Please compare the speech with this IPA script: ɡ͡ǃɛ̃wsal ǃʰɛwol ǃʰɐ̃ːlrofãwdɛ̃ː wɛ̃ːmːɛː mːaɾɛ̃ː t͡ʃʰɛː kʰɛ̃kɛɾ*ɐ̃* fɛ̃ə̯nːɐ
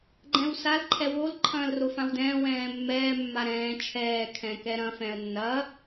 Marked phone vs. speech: correct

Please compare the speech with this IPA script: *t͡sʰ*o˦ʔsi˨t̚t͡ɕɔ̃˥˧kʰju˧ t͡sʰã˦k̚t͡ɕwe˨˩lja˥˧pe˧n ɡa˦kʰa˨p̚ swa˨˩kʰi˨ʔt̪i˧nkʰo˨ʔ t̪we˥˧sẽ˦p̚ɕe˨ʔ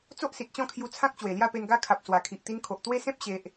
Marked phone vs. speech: incorrect: t͡s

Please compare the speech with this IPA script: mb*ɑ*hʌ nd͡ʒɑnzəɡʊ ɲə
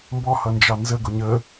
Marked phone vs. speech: incorrect: ɔ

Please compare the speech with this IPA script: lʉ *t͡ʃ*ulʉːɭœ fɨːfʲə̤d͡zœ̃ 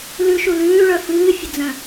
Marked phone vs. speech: incorrect: ʃ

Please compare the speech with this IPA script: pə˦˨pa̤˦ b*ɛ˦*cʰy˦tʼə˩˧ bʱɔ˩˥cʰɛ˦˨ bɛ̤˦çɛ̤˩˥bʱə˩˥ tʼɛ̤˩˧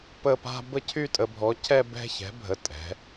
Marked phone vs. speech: incorrect: ə˦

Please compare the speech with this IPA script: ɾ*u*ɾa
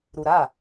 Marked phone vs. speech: correct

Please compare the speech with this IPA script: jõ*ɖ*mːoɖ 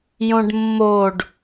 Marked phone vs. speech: correct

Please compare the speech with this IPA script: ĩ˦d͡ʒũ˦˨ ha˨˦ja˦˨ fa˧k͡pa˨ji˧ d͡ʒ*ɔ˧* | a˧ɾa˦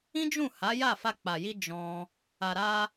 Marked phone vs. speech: incorrect: ɔ̃˧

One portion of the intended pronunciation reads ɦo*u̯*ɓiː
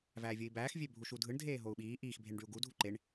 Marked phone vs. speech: correct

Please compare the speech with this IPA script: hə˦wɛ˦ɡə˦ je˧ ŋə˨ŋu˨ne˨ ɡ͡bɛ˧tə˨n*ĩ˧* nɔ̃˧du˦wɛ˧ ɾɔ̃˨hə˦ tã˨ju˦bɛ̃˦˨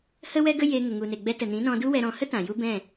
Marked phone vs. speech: incorrect: ĩ˨˦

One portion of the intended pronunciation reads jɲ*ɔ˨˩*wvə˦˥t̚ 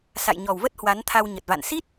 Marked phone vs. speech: correct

